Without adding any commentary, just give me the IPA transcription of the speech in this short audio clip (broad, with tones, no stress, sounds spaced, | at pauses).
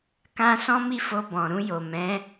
k ã˦ s ɔ̃˦ m i˦˨ f o˧ b ɔ̃˨ ɾ ũ˧ j o˨ m ɛ̃˨˦